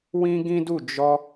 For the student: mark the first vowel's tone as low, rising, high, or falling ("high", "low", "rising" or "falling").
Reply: high